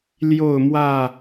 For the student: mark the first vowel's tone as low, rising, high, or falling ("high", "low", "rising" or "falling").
falling